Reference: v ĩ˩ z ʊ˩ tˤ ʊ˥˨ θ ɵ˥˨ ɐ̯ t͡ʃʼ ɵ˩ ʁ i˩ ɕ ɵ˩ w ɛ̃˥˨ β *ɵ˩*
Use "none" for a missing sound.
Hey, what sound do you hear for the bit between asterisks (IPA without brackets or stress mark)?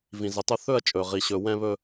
ɵ˥˨